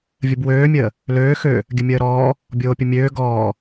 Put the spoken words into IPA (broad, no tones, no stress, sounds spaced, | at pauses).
vʲ ə b w øː mʲ əː | l øː x ø | ɡʲ ə mʲ əː ɾ ɔː | bʲ oː pʲ ə mʲ øː ɡ ɔː